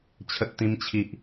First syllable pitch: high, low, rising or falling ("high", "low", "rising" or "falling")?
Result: high